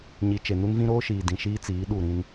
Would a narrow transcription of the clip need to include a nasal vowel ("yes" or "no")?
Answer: yes